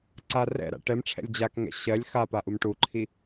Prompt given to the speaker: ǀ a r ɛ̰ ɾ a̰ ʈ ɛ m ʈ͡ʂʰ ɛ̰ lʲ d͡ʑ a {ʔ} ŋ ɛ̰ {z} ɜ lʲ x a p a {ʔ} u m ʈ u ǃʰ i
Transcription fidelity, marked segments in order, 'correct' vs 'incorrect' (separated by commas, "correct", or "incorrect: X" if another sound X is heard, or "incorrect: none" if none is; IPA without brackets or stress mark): incorrect: k, incorrect: ɕ, correct